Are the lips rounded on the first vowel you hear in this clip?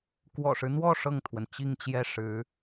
yes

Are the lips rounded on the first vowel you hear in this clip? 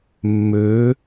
yes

